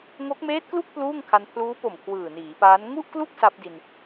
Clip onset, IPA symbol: ŋ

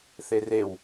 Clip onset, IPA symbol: θ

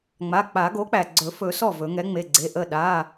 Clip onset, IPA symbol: ŋ͡m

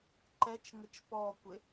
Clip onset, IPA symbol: ǃ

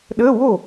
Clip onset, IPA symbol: ɗ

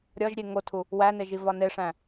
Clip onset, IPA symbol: ɾʲ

